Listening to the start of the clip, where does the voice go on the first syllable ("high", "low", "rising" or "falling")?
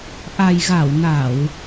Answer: low